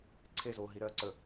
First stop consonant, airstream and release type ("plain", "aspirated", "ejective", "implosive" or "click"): click